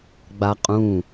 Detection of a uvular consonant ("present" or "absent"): present